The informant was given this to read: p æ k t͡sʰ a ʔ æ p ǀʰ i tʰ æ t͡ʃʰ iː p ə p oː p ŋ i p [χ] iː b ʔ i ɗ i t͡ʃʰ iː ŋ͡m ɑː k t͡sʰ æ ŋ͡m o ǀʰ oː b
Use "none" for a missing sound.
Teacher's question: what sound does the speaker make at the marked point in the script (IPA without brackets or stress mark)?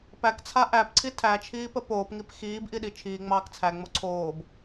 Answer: x